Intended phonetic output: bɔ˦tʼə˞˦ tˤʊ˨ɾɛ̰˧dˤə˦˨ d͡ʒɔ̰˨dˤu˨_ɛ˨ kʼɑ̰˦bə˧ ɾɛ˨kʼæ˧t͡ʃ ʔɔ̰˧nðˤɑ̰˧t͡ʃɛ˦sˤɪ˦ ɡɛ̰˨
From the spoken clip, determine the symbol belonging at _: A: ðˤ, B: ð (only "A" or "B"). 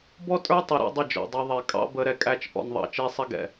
A